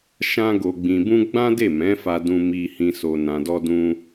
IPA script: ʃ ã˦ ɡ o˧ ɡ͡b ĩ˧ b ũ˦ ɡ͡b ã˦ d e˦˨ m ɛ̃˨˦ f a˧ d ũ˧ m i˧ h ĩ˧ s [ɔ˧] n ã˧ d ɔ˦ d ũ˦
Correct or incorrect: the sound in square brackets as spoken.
incorrect: o˧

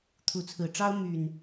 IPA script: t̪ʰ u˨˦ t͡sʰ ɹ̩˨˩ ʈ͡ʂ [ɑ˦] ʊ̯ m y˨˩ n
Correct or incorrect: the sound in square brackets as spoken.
correct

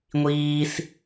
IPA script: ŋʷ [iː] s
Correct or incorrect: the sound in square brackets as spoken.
correct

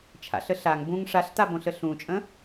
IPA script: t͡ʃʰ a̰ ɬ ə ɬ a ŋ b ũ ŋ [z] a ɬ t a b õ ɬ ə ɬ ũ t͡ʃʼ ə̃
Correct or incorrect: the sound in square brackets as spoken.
incorrect: ʂ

